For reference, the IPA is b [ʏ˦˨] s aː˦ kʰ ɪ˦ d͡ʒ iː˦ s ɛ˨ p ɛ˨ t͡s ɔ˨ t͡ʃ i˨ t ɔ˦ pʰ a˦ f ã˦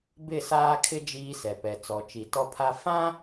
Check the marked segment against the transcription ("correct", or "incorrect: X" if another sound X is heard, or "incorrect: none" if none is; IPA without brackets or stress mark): incorrect: ɪ˦˨